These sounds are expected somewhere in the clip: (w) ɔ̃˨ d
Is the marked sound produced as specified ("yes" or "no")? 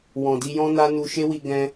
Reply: yes